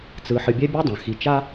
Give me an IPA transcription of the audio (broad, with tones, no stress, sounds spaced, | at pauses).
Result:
t͡s ɯ˨ ħ ɨ˨ bʲ ɛ˦ bʲ a˥ dˤ ã˩ x i˨ t͡ʃ a˥